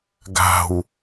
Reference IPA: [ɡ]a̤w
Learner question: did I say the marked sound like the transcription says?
yes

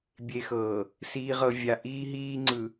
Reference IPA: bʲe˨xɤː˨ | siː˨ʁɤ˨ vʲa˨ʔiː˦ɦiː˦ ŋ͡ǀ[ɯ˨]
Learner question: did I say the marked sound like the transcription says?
yes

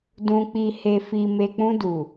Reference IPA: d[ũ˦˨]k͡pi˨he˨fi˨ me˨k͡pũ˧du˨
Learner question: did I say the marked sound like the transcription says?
no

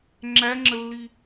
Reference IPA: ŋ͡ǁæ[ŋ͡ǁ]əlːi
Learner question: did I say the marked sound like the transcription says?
yes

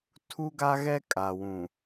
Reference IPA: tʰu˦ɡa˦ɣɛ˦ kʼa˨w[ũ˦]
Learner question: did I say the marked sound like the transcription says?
no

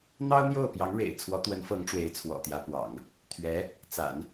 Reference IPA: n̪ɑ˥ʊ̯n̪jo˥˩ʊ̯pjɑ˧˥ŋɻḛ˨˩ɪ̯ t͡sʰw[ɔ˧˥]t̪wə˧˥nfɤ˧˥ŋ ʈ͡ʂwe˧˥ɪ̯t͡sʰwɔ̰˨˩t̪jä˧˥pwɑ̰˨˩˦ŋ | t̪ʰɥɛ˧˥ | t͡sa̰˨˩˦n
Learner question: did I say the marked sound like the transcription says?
yes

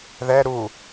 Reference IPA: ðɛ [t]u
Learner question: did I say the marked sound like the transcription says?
no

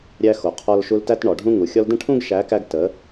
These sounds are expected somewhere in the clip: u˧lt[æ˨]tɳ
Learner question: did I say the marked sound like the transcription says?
no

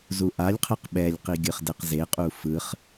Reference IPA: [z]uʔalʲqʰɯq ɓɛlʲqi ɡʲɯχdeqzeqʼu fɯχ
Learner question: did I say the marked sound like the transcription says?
yes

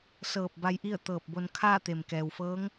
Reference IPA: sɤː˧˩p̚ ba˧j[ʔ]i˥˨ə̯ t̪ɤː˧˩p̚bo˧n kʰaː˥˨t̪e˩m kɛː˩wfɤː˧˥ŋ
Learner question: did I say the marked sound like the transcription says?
yes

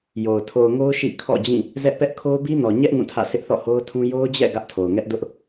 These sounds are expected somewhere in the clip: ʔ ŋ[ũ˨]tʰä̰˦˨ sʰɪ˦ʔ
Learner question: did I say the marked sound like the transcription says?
no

